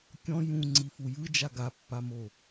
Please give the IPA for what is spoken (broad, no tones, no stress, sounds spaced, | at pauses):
kʲ ɔ̃ j ũ ŋ͡ǀ i f u j ɯ d͡ʒ a ɡ a pː a m o